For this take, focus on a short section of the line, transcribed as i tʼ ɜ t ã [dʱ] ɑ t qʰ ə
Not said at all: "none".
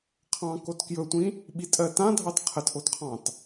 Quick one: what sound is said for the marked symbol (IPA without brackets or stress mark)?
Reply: dʱ